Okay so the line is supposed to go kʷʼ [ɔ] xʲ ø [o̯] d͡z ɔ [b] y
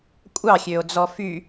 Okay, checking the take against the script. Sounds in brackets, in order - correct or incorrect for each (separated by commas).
incorrect, correct, incorrect